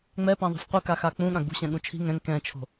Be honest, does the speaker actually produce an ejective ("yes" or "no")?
no